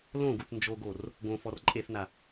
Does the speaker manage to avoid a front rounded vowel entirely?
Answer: yes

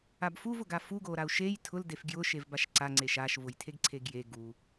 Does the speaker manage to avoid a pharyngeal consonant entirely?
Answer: yes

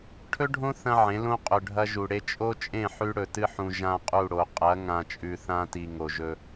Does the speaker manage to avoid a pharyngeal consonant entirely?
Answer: no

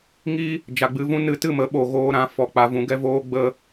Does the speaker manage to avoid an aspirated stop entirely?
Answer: yes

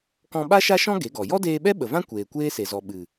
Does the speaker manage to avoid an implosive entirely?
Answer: no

